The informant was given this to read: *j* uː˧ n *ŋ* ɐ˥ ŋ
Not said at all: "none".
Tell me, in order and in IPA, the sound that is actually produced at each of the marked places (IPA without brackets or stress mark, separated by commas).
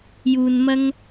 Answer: j, m